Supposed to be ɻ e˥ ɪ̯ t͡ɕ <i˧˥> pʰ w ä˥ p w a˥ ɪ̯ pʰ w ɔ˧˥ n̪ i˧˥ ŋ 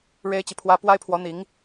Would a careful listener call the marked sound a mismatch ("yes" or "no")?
yes